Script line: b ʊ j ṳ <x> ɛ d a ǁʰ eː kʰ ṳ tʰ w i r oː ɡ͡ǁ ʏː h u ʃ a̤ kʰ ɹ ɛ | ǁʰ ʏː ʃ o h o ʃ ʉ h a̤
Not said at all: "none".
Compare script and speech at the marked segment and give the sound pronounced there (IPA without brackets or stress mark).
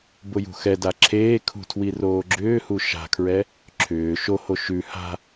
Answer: x